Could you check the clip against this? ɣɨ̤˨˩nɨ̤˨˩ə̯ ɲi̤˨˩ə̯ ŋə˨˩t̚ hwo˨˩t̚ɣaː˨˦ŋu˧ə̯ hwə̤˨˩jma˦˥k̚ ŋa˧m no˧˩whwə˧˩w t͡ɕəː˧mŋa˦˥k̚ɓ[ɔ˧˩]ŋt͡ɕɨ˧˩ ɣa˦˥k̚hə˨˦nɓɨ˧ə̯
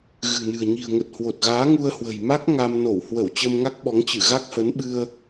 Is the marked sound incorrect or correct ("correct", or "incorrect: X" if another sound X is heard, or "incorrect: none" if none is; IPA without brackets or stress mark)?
incorrect: ɔ˨˦